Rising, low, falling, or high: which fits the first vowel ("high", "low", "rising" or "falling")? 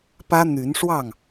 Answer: high